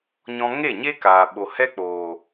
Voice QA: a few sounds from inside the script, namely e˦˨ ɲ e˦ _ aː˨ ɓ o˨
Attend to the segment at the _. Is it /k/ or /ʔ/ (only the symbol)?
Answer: k